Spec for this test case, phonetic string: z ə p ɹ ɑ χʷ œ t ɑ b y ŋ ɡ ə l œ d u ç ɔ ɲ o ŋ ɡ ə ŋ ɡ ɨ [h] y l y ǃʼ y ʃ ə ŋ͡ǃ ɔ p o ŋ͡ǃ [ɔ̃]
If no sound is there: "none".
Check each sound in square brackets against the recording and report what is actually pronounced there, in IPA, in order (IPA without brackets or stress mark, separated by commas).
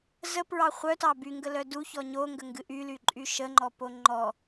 ʔ, ɔ